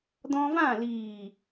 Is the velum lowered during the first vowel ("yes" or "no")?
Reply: yes